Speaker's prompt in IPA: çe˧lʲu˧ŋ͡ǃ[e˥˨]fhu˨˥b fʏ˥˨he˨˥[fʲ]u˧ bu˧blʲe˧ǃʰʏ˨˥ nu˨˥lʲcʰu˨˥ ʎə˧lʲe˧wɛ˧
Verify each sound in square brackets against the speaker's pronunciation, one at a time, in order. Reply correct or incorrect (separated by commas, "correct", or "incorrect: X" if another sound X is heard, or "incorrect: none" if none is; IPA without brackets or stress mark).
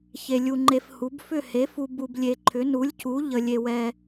incorrect: e˧, incorrect: f